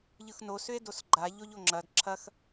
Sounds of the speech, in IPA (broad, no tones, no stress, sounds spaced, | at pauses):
ʎ ɯ x n o s ʏ e̯ d o s ɡ͡ǃ a ʎ o ʎ o ŋ͡ǁ ɐ d ǁʰ ɐ x